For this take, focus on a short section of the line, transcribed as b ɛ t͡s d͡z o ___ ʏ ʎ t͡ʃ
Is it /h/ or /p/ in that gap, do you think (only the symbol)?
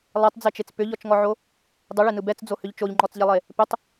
h